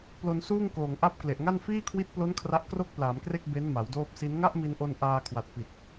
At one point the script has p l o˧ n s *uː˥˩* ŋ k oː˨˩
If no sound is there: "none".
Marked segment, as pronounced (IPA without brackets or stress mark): uː˥˩